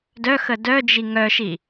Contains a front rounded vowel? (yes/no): yes